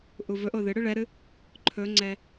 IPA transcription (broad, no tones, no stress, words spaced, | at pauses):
ʔuvɵʔo ðɨɽɨ ɭɛɾɨ | ǃʰɵŋ͡ǀɛ